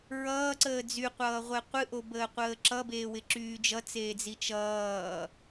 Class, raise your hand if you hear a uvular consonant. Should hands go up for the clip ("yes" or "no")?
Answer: yes